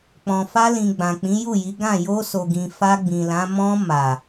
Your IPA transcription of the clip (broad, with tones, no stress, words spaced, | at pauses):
k͡pɔ̃˨fa˧lĩ˨ ɡ͡bã˨k͡pĩ˨˦ju˦˨ji˨˦ ɡã˦˨ jo˧so˨ɡĩ˨ fa˧ɡ͡bĩ˨lã˨˦ mɔ̃˧ ma˨